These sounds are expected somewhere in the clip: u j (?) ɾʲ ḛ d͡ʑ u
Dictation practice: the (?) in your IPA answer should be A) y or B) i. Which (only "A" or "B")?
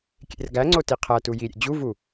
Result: B